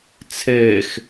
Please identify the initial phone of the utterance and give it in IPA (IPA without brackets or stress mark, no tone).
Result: t͡sʰ